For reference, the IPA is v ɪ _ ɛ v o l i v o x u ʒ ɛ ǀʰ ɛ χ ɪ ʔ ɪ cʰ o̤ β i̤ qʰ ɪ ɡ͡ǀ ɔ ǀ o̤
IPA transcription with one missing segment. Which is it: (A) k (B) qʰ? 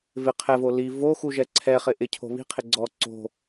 B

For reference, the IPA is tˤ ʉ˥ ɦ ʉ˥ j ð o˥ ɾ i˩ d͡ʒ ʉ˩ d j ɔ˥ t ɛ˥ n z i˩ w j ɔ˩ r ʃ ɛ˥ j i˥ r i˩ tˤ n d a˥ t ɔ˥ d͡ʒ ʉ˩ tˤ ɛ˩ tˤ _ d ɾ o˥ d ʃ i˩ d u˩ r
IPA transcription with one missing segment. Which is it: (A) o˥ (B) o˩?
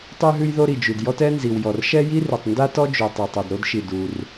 B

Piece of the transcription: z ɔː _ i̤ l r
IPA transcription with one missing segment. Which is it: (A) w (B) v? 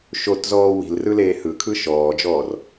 A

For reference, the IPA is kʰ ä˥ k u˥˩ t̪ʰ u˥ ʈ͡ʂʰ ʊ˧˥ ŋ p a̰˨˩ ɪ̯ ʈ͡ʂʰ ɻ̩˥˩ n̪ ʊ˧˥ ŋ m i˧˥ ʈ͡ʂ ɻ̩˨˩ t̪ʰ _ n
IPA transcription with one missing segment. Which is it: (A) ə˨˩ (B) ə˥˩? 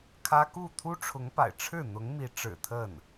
B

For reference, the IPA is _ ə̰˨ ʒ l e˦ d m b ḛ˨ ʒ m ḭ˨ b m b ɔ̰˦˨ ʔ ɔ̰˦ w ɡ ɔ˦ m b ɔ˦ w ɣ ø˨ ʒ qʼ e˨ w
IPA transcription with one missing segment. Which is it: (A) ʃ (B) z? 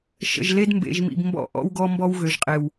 A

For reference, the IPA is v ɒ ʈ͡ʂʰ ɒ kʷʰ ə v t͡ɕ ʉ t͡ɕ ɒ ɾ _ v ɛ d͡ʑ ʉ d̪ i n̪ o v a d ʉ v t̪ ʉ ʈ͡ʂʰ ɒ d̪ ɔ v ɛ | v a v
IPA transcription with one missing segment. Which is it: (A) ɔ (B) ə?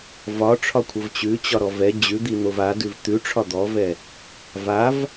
A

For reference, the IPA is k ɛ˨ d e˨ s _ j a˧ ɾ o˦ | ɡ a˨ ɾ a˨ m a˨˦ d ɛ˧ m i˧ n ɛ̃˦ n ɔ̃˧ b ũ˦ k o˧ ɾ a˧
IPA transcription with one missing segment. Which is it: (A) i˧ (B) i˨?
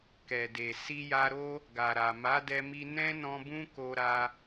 A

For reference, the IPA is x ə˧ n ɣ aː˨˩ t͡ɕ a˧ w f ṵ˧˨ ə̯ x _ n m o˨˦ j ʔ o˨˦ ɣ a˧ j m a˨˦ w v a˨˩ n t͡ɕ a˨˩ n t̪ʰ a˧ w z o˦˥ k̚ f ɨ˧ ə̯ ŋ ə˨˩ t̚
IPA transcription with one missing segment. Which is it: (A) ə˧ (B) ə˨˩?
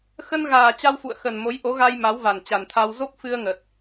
B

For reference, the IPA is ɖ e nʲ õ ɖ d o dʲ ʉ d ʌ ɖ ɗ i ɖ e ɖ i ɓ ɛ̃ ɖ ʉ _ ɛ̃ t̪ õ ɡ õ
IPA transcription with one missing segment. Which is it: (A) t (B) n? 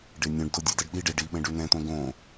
B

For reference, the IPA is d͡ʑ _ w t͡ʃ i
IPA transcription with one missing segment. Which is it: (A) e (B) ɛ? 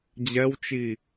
B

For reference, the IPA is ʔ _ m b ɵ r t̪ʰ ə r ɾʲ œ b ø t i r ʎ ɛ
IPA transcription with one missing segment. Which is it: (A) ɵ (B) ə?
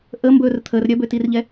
B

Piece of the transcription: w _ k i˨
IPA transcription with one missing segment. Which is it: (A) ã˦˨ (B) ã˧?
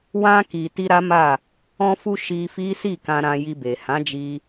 B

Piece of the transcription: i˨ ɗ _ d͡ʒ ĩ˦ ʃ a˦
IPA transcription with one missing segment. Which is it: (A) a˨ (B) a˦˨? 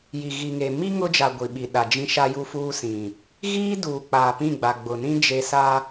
A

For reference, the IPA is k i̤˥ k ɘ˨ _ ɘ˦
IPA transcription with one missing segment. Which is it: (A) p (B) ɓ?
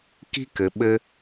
B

